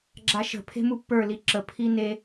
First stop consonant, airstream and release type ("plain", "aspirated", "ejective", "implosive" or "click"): click